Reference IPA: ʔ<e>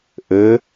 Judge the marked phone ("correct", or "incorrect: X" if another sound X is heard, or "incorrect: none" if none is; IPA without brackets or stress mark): incorrect: ɘ